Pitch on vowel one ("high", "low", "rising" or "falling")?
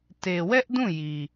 low